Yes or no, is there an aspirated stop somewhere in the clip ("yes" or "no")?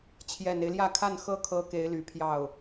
yes